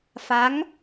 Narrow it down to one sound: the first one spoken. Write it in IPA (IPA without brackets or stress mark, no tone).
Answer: f